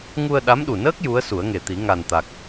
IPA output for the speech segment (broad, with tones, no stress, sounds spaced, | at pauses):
ŋ u˧ ə̯ ɗ a˧˥ m ɗ u˨˩ n əː˦˥ k̚ j u˧˥ ə̯ s u˨˩˦ ə̯ ŋ e˨˩ t̪ i˨˩˦ ŋ a˨˩ n t̪ a˨˩ k̚